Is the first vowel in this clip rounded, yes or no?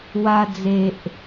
no